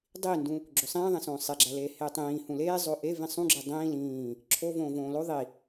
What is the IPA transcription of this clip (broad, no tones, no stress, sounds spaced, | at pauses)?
dˤ i n d ũ | ɡ͡ǁ o sˤ ĩː ðˤ ẽ s õː sˤ e ɡ͡ǁ æ l eː h eː tˤ ĩː h ũ l eː zˤ o ʔ e v ĩ sˤ ũ ɡ͡ǁ e dˤ ĩː l ĩː | ǁʰ o v õː v õː l o ðˤ i